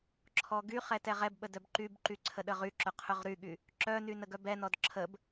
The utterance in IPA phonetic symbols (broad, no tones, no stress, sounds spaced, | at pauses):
ǁʰ ɔ ɡ y χ ɛ t ɛ ʁ ɛ b ɓ ə d œ b ǃ y b ǃ y ǀʰ ə ɗ ə ʁ y ǁ ʊ qʰ ʊ ʁ ɾ y ɠ y | ǁ œ n y n ə ɡ œ b ɛ n ɔ d ǁʰ ə b